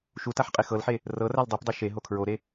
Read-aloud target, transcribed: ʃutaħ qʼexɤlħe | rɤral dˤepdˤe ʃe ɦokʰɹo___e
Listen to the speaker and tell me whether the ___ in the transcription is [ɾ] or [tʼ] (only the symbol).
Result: ɾ